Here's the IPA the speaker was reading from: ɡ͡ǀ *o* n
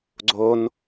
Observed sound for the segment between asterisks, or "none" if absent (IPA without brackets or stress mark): o